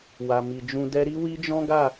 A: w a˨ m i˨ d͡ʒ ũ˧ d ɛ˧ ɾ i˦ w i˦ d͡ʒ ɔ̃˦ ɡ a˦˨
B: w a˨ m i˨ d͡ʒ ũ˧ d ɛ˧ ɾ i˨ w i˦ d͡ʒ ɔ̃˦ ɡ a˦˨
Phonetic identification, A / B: A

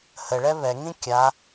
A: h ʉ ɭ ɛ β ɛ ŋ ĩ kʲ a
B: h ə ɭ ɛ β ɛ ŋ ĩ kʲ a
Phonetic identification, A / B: B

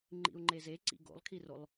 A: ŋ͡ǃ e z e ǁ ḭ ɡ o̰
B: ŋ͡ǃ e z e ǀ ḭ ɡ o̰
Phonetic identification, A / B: B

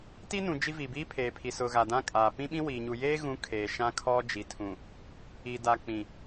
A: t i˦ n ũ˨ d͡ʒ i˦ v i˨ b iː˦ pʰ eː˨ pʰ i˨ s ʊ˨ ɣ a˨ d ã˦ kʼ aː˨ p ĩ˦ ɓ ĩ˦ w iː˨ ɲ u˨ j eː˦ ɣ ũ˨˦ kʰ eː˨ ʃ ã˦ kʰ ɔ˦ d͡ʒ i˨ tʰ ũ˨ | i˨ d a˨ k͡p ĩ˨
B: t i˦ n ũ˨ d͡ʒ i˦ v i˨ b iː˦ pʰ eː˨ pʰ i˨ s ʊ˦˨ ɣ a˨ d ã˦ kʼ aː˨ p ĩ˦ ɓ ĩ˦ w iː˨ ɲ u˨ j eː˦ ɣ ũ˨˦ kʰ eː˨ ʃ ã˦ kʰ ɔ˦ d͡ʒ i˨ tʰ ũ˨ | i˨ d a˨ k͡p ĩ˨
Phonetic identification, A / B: A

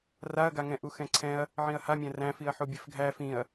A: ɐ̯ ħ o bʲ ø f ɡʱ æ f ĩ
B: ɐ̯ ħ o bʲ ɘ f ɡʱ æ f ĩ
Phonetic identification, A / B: B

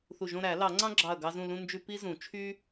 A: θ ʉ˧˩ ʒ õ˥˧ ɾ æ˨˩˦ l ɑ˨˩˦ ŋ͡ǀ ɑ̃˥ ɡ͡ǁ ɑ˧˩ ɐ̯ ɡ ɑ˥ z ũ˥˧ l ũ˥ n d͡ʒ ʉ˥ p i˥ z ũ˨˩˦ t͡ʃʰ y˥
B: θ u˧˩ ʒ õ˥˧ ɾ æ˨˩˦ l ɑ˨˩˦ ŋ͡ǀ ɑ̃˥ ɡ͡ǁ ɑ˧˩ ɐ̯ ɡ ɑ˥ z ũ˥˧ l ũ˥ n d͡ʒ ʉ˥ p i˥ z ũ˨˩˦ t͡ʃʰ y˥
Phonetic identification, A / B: B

